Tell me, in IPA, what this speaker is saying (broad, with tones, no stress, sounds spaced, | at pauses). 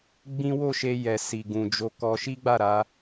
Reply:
ɡ͡b ĩ˦ w o˦˨ ʃ e˧ j ɛ˨ s i˨ ɡ ũ˨ d͡ʒ o˧ k ɔ˧ ʃ i˦ ɡ͡b a˦˨ ɾ a˧